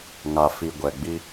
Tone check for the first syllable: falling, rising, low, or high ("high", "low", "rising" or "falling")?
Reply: low